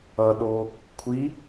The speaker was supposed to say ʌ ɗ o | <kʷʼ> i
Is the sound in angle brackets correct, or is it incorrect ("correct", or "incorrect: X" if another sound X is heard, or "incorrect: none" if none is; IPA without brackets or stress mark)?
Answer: incorrect: kʷʰ